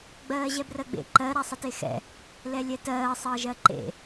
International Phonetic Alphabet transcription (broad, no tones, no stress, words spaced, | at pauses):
ɡ͡bɜːʑɛbrɜɡ͡bḛ ǃɜ ɾasˤətexɛ̰ | lɛlʲɛtɜː sˤəːʒɜǃḛ